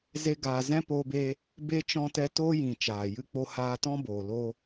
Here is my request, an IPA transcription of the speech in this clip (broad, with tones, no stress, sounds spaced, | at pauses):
z e˦ ɡ aː˧ z ɛ̃˦ p oː˧ b e˧ | b e˦ t͡ʃ ɔ̃˦ t ɛ˦ t oː˦ j ĩ˨ t͡ʃ aː˨ j ɨ˧ k͡p o˧ h aː˧ t ɔ̃˦ b oː˨ l o˧